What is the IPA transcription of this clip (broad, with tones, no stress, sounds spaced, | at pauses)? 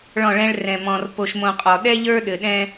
ɭ ɔ̃˦˨ ɭ ɛ̃˦ ɭ r ɛ̃˨ m ɔ̃˨ r p o˨ ʃ m õ˨ qʼ ɔ˨ ɗ ɛ˦ ʎ ə˞˦ ɗ ɘ˨ ɗ ɛ̃˦